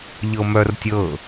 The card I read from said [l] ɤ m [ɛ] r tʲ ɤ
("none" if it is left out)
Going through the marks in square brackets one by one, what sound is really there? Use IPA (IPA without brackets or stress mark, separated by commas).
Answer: ʎ, œ